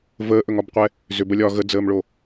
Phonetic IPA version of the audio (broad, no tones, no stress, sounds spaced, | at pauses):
v əː ʔ ɵ ŋ ɒ b qʷ ɛ | z ʏ b ə lʲ ɒː ɣ ə d͡z əː m ɭ o